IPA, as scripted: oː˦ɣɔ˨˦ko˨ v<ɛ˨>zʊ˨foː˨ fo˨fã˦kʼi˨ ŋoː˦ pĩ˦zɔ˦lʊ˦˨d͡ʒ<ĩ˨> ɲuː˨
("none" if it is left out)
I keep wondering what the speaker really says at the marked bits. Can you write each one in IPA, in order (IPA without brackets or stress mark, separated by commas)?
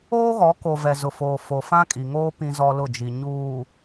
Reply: ɛ˨, i˨